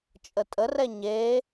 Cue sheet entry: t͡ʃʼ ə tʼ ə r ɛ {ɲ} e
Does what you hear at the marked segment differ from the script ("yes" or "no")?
no